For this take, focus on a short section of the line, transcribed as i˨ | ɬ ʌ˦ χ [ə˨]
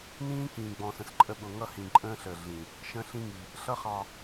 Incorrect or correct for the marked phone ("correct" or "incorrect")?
incorrect